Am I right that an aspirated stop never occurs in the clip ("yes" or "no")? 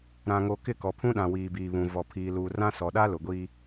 no